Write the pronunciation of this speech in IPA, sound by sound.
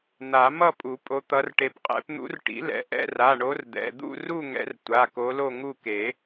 n̪ a˨˩˦ m ʌ˥˨ pʼ u˨˩˦ pʼ o˨˦ t̪ ʌ˨˦ r ʈ e˨˦ p qʼ ɛ̰˨˦ p n̪ ṵ˨˦ r ʈ ḭ˨˩˦ l ɛ̰˩˧˩ ʔ ɛ̰˥˨ r a˩˧˩ ɳ o˨˦ r d̪ ɛ̰˩˧˩ d̪ ṵ˥˨ r u˥˨ ŋ ɛ̰˨˦ r tʷ a˩˧˩ k o˨˦ l o˥˨ ŋ u˥˨ k e˨˩˦

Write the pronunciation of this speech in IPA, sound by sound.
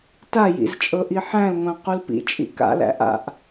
t a j ḭ z t͡ʃʼ ɤ ʔ i ħ æ̃ l ŋʷ æ̃ q u l p ḭ t͡ʃʼ ḭ k a̰ l æ̰ ʔ a̰ ʔ

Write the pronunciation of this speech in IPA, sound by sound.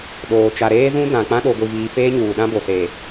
ɗ oː˨ t͡ʃ a˨ ɾ eː˦ z ũ˦ d ã˨ k͡p ã˦ ɗ o˨ ɡʷ i˨ v iː˨ f eː˦ ɲ uː˨ ɗ ã˦ b o˨ s eː˨

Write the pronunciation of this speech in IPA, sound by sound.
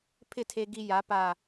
pʰ ɪ˥˨ tʰ e˧ ɡ i˧ j a˩˧ p a˨˩

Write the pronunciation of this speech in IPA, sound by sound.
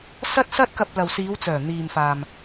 s ɐ˥ t̚ s ɐ˥ t̚ k ɐ˧ p̚ l ɐ˨ w s iː˨˧ w t͡s œː˨˩ n̪ iː˨ m f aː˨ m

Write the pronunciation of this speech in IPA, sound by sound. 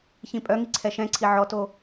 ç ĩ pʼ œ ŋ i ǀʰ ɛ ʃ ɛ̃ ǀʰ i ʕ ɔ t o

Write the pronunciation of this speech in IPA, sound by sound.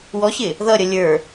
w ɔ ɕ ɪ | ð ʌ ɾʲ ʌ lʲ ə˞

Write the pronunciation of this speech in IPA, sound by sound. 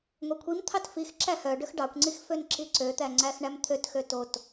ŋʷ e kʷʰ i m t̪ʰ ɑ t f i x ǁ æ h œ ɖ ø x ɖ ɑ kʷ ŋ͡ǀ i x f ø n ǁ i ǀ ø t̪ æ ŋ͡ǀ æ x ɳ æ m t̪ʰ ø t x ø t o t

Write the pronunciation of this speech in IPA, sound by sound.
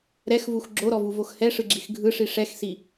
ɾ ɛ x v u x ɡ͡ǁ o ɾ ɔ v u v o x h ɛ ʂ ɯ ɡ͡ǁ i x ɡʱ ɯ ʂ i ʂ ɛ x s i

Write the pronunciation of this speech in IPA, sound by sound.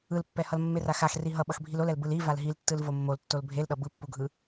ɯ l pː ɛ h ʌ l mː e r a x a x r i ɦ ʌ ɓ ʌ x bʱ i l o l ɛ l b ɯ l i v a l ɦ i l tː ɯ l v o mː o l tː o l bʱ e l ɗ ʌ b ɯ pː u ɡʱ ɯ

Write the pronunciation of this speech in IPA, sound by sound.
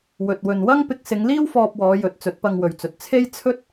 w ɵ˨ t̚ w ɵ˨ n w ɐ˥ ŋ p ɪ˧ k̚ s ɪ˨˧ ŋ l iː˥ w f ɔː˧ p̚ w ɔː˨˧ j ɵ˨˥ t̚ t͡s ɵ˨˥ t̚ p ɐ˧ ŋ w ɵ˨ ɥ t͡s ɵ˨ t̚ t͡sʰ e˥ j t͡sʰ ɵ˥ t̚

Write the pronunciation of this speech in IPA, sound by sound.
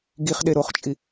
ɡ i χ ɗ e ɾ o χ t͡ʃʼ i

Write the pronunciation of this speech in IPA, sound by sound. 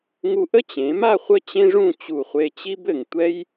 ŋ u˧ ʔ ə˥ t͡ɕ ẽ˩˧ m a˥˧ χʷ ə˥ t͡ɕ ẽ˥ ʐ ũ˥˧ t͡ɕ u˧˩ χʷ e˧ t͡ɕ i˥ b ɘ˧˩ ŋ tʷ ɛ˥ j

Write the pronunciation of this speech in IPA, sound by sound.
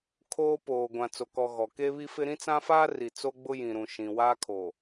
kʰ oː˦ p oː˨ ɡʷ ã˨ t͡s o˨ k ɔ˨ ɣ ɔ˨ k e˦ β i˦ f ɪ˦ ɾ ĩ˦ t͡s ã˦ f aː˦ r i˨ t͡s o˦ ɡ͡b ʊ˦ j ĩ˨ ɾ ũ˨ ʃ ĩ˨ w aː˦ kʰ o˨

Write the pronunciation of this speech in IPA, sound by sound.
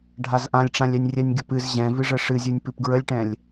ɖʱ a z ʔ ã lʲ ʈ͡ʂ ã lʲ ɛ nʲ rʲ ɛ nʲ ɡʲ ə p ɨ z ʑ ɛ̃ v ɨ ʐ ə ʂ ɨ zʲ ɨ nʲ p ɨ p ɡ ɹ ə lʲ ʈ ɛ̃ lʲ

